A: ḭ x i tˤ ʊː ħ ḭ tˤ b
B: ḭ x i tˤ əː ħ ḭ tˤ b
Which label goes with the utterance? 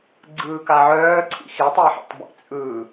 B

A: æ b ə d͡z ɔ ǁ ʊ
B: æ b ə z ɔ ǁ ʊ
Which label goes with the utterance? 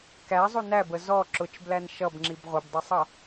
B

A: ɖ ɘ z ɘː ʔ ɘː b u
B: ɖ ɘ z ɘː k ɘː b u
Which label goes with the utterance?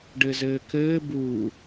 B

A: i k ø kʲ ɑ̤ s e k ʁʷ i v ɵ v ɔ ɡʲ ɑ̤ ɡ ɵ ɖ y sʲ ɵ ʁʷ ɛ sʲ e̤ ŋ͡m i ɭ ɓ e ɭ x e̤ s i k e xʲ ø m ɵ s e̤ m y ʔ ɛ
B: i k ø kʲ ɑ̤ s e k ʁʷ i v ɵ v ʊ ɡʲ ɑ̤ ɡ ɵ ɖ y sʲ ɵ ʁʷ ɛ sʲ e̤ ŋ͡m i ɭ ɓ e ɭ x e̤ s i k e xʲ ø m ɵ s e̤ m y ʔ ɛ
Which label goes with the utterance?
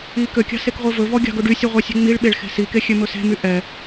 A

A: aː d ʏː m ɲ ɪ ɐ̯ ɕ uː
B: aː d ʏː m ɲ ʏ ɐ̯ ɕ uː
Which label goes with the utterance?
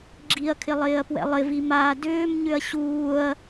B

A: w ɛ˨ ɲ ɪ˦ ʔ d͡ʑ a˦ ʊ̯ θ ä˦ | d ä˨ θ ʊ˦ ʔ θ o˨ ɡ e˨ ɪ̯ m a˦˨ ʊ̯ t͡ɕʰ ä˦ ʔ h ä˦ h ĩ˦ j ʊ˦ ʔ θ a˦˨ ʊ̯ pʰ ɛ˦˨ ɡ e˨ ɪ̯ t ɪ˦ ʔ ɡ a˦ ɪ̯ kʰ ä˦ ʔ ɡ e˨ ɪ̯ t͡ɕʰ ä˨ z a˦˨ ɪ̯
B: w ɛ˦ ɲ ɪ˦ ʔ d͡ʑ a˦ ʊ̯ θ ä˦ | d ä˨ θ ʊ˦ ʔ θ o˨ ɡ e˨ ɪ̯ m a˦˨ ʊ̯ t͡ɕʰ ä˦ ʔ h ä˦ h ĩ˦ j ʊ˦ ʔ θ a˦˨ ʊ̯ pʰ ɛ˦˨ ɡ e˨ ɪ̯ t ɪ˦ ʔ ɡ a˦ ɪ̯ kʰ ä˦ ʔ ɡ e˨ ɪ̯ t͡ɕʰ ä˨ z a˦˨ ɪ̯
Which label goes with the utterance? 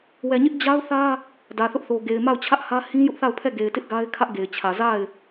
A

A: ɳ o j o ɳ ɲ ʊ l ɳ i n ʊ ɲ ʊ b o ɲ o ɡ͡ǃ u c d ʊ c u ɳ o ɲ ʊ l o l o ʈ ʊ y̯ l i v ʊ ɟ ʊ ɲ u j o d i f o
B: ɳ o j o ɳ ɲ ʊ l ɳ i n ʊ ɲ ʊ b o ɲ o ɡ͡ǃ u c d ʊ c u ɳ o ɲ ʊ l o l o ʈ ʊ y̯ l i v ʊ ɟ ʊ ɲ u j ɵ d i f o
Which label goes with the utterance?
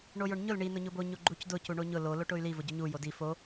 A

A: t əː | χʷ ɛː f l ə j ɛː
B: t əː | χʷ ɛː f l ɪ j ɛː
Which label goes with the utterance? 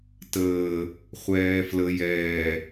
A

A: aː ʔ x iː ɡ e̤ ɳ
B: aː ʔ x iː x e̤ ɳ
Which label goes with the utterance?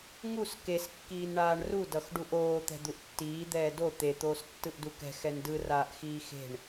B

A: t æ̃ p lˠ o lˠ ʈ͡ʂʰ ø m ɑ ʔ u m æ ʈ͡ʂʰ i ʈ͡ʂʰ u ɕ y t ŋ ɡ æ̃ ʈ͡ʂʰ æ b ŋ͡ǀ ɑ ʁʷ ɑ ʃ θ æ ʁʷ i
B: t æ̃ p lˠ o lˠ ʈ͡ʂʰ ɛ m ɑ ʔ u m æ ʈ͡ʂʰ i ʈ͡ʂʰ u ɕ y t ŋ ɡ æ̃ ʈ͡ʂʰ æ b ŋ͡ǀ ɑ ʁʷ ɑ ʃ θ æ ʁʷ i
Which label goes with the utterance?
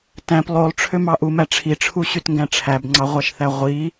A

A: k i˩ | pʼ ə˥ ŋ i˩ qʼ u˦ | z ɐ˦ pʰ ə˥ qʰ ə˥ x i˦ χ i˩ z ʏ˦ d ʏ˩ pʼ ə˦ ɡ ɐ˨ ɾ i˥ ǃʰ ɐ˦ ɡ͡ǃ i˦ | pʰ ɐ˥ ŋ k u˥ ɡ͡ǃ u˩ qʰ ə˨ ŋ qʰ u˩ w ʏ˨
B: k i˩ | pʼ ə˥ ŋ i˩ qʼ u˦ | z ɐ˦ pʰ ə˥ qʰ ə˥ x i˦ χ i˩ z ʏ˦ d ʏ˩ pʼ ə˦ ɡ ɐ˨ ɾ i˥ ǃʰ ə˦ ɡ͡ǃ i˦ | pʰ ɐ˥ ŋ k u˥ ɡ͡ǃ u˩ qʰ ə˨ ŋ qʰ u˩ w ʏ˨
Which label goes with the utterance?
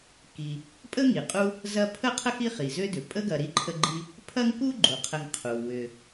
B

